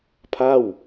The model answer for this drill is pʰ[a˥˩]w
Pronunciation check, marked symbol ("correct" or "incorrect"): correct